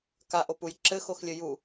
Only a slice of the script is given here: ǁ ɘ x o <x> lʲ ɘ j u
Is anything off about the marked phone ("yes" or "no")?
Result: no